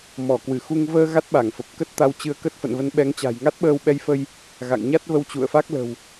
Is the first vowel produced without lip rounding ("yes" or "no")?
no